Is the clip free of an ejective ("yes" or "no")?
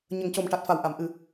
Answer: yes